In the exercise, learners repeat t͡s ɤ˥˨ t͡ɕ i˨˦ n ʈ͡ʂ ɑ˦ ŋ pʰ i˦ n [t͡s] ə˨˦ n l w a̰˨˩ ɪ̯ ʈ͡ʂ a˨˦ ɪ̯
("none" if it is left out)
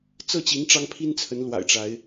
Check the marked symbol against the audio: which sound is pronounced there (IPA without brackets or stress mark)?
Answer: t͡sʰ